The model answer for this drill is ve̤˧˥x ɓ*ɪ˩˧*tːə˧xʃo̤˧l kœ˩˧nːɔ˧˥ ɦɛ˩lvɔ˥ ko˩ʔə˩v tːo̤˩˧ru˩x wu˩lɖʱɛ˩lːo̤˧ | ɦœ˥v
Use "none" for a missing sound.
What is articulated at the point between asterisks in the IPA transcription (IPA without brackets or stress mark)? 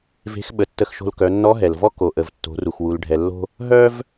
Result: ə˩˧